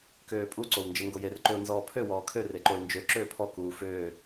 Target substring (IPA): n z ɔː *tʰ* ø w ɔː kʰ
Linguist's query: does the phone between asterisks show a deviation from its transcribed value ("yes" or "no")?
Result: yes